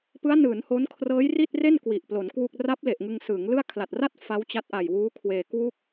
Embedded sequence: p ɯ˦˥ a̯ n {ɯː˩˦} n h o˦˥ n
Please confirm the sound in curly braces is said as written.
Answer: yes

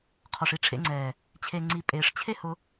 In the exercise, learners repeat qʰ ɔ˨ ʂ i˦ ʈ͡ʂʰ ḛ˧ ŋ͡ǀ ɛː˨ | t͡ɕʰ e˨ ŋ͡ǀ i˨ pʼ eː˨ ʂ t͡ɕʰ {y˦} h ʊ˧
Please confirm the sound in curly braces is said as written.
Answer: no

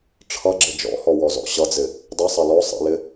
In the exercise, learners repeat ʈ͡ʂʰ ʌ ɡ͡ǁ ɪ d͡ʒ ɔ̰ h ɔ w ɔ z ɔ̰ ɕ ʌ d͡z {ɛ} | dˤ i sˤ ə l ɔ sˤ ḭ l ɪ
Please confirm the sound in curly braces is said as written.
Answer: no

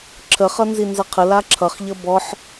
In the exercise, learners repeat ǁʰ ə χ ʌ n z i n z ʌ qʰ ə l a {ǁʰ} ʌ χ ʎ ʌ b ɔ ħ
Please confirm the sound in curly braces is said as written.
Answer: yes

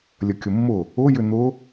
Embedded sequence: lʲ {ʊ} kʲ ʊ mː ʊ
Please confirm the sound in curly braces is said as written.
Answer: no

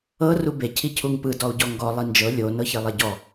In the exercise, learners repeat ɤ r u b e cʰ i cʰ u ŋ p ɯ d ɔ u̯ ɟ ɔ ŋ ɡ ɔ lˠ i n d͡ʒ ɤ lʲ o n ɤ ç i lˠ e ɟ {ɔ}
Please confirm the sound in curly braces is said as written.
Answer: yes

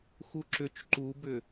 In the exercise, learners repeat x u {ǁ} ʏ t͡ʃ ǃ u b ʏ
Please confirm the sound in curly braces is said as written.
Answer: yes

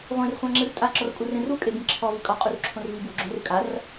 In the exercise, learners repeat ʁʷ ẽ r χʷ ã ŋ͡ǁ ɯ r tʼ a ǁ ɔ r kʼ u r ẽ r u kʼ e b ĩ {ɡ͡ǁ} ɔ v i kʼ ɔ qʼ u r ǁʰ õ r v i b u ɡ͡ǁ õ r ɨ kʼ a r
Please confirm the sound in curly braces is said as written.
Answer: no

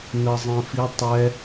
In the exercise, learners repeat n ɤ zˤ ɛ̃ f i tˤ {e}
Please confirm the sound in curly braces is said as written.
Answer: no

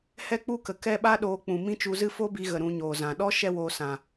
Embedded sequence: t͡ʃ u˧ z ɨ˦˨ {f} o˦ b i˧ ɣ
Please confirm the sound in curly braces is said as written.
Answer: yes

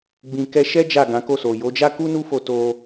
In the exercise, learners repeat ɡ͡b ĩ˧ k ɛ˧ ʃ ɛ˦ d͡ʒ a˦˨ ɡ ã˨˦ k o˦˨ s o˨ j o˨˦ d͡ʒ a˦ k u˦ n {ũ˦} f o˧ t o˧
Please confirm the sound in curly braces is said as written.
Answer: no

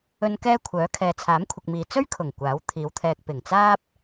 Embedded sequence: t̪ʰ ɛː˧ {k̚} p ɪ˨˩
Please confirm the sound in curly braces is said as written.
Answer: yes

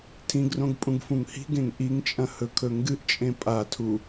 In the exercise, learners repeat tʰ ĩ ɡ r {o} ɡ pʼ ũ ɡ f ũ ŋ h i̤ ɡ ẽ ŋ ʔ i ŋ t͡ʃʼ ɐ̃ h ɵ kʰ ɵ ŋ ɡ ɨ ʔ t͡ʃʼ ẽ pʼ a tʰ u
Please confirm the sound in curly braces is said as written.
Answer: no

